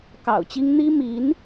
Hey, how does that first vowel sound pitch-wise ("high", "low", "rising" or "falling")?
low